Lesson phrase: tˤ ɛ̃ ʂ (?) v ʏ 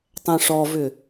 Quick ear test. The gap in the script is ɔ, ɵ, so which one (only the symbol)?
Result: ɔ